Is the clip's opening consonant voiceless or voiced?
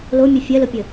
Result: voiced